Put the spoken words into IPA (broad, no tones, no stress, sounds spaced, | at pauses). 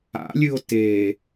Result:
a̰ lʲ ɨ o̯ t eː